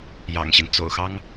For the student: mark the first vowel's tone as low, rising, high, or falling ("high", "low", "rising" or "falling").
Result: low